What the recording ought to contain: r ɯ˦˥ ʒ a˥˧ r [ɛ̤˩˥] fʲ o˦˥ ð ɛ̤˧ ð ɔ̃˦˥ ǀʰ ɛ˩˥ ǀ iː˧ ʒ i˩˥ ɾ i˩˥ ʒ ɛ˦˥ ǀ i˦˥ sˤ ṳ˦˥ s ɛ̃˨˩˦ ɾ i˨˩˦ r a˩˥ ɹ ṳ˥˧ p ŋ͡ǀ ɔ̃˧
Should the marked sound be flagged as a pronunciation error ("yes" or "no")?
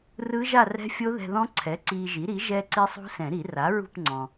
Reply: yes